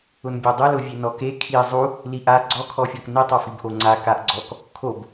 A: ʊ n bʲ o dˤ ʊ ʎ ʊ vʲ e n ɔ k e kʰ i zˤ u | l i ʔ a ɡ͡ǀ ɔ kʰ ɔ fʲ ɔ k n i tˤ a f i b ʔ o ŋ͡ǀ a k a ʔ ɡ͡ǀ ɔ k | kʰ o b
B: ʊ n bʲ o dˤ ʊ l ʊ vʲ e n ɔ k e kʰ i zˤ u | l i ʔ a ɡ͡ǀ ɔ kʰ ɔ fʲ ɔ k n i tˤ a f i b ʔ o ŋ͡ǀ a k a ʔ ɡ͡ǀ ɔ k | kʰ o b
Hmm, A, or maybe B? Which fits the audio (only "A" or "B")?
B